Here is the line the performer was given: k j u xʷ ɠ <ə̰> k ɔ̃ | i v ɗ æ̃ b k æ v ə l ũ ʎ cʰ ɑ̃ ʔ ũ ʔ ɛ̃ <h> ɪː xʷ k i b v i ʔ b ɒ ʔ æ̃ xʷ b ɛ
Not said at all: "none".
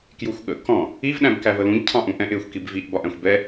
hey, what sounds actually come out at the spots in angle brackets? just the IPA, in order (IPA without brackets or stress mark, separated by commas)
ə̰, ʔ